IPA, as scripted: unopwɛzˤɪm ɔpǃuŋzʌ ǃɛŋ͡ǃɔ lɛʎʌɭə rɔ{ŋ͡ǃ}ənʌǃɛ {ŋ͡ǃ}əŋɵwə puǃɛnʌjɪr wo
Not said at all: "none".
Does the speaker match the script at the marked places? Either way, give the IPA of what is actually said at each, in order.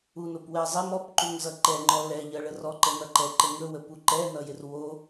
ǃ, ǃ

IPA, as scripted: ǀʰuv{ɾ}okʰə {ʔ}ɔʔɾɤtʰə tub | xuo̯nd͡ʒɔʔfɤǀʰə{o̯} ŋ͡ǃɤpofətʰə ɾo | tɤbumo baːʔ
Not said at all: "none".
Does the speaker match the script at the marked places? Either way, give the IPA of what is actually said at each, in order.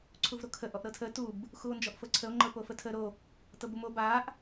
ɾ, ʔ, o̯

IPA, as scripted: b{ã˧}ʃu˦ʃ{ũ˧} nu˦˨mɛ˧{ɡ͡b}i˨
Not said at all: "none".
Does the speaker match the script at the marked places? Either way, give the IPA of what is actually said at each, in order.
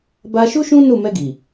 a˧, ũ˦, ɡ

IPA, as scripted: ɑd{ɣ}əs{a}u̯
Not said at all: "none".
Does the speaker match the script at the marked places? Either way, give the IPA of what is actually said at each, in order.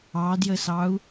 j, ɑ

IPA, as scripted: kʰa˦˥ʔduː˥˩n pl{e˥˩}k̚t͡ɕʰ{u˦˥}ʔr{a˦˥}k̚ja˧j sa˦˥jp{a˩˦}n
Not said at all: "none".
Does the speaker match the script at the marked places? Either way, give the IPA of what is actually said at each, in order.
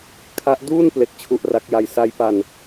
e˦˥, u˦˥, a˦˥, a˧

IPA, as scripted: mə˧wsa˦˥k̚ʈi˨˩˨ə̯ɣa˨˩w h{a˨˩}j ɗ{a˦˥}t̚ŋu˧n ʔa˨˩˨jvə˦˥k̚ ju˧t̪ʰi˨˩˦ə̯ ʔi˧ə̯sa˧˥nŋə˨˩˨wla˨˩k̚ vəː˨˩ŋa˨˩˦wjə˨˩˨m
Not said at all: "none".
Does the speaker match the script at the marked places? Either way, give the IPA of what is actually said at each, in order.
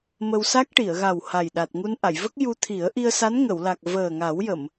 a˨˩, a˨˩

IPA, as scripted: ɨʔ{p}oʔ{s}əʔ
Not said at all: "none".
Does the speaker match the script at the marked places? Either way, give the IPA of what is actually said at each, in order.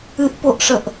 p, ʂ

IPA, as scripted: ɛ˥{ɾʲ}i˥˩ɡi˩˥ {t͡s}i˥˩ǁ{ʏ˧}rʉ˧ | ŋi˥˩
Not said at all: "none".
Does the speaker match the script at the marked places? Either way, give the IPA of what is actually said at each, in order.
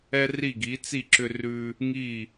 r, t͡s, ʏ˧

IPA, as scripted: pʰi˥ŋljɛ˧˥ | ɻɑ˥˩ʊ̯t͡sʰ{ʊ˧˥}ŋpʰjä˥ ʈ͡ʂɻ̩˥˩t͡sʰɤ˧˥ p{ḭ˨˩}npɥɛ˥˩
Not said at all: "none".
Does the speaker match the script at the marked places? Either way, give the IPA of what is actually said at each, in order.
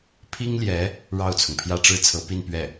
ʊ˩, i˥˧

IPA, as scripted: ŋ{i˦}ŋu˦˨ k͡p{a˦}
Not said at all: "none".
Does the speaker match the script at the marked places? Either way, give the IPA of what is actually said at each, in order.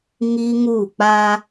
i˦, a˦

